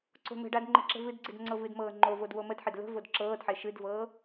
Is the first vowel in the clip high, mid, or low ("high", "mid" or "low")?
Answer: mid